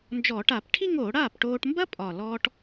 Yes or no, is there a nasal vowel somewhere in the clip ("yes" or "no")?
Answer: no